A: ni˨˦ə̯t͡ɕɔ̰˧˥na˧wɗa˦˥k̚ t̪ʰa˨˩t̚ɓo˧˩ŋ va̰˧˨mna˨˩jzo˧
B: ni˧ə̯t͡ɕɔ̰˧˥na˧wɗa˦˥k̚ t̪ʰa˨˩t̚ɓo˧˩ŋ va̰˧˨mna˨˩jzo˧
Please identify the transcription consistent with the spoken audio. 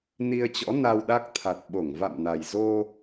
B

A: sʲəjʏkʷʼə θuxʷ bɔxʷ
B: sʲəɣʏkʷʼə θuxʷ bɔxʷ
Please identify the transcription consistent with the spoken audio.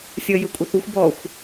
A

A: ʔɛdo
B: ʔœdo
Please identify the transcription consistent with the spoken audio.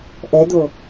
A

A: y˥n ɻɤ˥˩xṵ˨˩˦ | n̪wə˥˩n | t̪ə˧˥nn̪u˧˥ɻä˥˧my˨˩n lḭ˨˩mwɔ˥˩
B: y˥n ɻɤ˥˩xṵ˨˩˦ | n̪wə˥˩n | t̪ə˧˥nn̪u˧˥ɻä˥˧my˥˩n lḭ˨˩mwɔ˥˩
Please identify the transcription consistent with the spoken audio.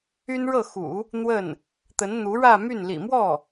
B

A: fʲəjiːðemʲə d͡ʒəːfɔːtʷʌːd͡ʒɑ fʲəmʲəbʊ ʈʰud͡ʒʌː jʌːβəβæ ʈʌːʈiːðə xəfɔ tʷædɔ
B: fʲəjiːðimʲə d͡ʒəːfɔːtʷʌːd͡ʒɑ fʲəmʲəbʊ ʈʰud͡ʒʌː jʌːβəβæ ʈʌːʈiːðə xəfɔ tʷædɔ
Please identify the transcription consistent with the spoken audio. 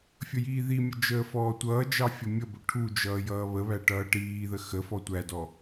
B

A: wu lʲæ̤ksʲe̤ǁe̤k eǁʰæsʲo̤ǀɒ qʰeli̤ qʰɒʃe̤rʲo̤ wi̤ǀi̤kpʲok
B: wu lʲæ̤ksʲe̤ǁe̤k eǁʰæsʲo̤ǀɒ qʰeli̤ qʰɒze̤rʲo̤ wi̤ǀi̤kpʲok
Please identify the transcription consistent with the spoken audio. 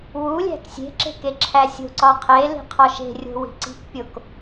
A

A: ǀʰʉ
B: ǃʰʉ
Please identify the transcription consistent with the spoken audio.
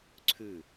A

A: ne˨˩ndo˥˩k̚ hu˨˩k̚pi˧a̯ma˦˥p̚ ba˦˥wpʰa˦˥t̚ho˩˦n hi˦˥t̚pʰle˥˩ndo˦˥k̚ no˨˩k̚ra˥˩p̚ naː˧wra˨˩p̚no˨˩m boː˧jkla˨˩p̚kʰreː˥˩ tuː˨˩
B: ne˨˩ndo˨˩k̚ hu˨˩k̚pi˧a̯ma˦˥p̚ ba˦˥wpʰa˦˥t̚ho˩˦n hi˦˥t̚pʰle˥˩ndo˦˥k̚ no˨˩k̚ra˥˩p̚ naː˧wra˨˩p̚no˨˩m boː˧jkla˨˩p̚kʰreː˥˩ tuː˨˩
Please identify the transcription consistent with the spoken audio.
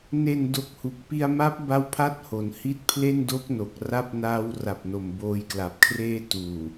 B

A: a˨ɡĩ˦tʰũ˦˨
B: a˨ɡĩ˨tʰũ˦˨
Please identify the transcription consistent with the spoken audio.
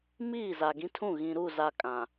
A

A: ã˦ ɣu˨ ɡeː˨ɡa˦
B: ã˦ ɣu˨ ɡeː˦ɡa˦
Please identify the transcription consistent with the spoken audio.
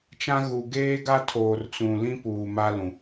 B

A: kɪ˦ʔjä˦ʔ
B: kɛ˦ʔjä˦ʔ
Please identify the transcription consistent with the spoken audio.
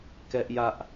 B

